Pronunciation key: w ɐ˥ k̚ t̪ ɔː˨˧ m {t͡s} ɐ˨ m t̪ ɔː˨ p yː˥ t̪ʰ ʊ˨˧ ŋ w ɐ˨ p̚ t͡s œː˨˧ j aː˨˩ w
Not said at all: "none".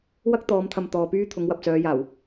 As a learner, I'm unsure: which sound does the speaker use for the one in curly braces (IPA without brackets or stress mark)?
t̪ʰ